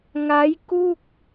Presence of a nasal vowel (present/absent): absent